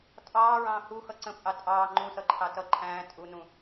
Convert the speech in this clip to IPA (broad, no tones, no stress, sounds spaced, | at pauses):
tʼ ɑː ɹ ɑ̃ː h u x ʌ ǀ ə̃ pʼ ɑ tʼ ɑː ŋ͡ǃ ũ s ʌ ǃʰ ɑ t ʌ ǃʰ æ̃ː tʼ u n ũ